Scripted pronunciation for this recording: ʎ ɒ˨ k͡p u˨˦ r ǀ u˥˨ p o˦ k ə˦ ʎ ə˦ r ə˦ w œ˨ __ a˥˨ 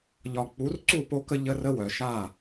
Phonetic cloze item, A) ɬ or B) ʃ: B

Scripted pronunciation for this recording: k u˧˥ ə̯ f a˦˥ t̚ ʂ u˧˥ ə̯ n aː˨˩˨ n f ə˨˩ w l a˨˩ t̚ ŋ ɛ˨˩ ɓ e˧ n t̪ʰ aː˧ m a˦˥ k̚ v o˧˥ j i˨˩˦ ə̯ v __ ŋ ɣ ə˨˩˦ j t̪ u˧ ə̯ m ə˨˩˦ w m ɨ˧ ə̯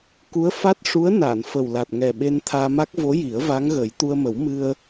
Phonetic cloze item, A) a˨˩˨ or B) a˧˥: B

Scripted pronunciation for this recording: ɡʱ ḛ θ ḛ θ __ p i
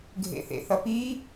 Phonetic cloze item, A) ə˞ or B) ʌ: B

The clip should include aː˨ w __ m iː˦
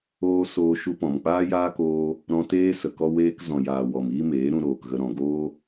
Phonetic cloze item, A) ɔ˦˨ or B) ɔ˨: B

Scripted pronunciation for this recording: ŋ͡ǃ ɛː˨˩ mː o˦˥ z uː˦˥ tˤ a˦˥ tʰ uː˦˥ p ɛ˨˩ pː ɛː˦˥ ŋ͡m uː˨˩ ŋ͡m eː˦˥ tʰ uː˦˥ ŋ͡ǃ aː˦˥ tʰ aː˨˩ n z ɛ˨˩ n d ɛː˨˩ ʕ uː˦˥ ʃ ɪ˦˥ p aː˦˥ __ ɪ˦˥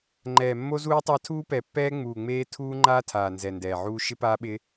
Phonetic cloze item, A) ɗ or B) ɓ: B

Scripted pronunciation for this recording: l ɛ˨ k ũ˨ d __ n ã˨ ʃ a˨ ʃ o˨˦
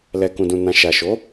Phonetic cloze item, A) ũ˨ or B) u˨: A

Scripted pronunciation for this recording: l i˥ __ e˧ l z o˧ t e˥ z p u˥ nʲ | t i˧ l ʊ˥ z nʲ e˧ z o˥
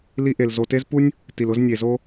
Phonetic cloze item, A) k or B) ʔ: B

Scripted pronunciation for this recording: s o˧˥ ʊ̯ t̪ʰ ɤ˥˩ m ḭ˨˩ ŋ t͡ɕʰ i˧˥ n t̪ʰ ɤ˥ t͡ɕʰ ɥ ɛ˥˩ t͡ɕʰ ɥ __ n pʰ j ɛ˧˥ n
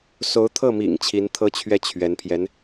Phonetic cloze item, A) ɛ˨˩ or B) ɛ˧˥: B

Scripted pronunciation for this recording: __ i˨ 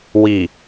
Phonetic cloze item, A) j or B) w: B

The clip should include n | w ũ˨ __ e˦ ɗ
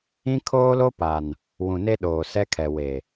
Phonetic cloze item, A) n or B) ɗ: A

